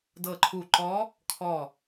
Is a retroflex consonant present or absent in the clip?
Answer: absent